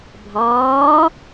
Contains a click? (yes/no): no